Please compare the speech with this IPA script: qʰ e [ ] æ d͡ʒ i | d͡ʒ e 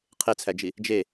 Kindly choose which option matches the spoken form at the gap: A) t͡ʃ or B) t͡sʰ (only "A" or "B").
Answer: B